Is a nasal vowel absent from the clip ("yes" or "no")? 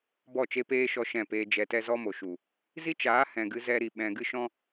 no